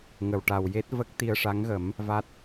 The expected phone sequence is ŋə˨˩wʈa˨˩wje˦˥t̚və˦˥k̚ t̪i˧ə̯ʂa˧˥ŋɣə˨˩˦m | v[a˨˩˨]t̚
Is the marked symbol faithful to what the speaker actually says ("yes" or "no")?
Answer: no